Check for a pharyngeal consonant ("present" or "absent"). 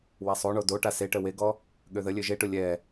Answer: absent